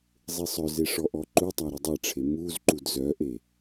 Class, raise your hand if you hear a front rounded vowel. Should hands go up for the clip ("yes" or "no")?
yes